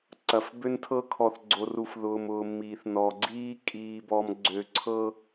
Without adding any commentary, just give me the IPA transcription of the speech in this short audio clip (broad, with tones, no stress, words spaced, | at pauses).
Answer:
ǀɐ˨fbø˦n tʰɤ˦kʰɔ˨θɡ͡ǀo˨ru˨f ðʊː˨mʊː˨ miː˨θnɔ˨ ɡ͡ǀiː˦ kʼiː˨bɔ˨mɡ͡ǀø˨ǀʰɤ˦